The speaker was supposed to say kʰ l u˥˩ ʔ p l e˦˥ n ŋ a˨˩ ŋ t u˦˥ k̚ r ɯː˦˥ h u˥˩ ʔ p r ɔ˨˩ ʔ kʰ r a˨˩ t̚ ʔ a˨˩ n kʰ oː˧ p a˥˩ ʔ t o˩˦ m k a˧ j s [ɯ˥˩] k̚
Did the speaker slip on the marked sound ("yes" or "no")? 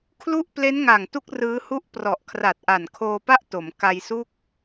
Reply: yes